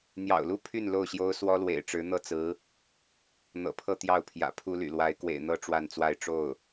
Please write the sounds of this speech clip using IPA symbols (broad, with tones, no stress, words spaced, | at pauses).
n̪jɑ̰˨˩ʊ̯lu˥ pʰy˥˧n lo˥˩ʊ̯ɕjo˥ʊ̯ swɔ˥lwḛ˨˩ɪ̯ʈ͡ʂɻ̩˧˥n̪ɤ˥˩ t͡sɹ̩˧˥ | n̪ɤ̰˨˩pʰɤ˥˧ t̪jɑ˥˩ʊ̯pʰjä̰˨˩ pʰu˥ly̰˨˩ lwa˧˥ɪ̯kwḛ˨˩ɪ̯n̪ɤ˥ ʈ͡ʂwa˥˧nt͡swa˥˧ɪ̯ ʈ͡ʂo˥˩ʊ̯